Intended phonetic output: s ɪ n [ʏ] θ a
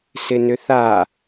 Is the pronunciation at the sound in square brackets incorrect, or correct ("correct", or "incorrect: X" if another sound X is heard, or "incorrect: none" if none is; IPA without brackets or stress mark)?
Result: correct